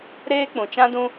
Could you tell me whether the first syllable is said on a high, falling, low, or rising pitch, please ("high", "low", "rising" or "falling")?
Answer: high